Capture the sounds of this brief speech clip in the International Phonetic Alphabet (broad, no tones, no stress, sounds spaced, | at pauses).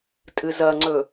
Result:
tʼ ɨ z ɐ ŋ͡ǀ ɵ